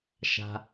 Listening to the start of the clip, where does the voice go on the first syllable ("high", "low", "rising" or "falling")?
low